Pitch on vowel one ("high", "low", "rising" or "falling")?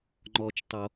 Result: high